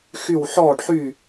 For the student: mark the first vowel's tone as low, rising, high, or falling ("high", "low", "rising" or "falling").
falling